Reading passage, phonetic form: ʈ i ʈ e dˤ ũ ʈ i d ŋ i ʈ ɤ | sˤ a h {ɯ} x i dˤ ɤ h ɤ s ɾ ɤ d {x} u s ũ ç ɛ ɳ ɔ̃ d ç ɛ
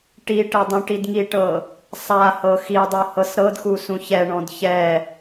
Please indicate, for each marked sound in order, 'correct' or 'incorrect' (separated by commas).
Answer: incorrect, correct